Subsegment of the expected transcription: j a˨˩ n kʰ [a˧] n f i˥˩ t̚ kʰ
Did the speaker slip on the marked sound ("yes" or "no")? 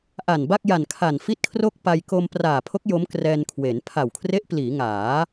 yes